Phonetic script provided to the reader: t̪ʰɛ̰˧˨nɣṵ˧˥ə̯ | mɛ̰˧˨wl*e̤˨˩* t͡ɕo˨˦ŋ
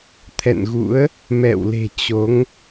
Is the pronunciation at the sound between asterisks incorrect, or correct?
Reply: correct